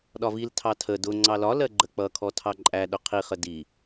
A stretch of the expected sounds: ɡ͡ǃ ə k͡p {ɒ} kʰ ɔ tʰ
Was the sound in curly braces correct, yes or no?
no